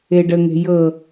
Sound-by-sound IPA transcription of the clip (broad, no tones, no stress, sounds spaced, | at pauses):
e ɖ ə ŋ e̤ j ɤ